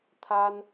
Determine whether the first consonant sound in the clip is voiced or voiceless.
voiceless